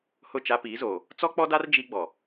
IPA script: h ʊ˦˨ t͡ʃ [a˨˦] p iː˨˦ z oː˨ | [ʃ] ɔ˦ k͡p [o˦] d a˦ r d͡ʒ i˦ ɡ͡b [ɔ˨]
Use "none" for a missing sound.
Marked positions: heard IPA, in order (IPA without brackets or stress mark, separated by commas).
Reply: a˦, t͡s, ɔ˦, ɔ˨